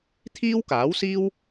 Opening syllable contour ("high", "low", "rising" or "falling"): high